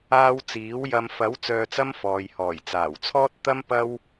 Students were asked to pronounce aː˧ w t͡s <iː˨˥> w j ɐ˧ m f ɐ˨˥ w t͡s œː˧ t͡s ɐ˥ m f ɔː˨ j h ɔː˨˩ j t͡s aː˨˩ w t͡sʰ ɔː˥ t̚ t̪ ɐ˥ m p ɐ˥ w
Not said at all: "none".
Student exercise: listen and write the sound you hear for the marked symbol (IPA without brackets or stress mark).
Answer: iː˨˥